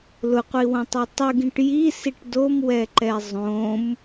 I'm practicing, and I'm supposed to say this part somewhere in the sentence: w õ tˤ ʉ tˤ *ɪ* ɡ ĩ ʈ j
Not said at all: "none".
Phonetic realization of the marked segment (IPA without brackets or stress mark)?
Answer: ɨ